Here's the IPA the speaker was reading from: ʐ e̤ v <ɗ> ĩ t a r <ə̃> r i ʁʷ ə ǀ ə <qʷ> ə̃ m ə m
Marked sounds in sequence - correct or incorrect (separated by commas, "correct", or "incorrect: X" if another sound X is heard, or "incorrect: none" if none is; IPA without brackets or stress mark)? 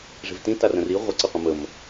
incorrect: t, correct, correct